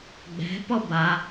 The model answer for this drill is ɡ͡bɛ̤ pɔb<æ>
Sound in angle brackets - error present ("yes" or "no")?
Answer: yes